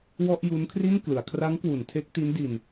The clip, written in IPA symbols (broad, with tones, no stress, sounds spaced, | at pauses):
w ɔ˥˩ ʔ j u˦˥ n kʰ r i˥˩ n k l ɯ˩˦ a̯ kʰ r a˦˥ ŋ k w u˩˦ n tʰ e˦˥ k̚ t i˦˥ n d i˧ n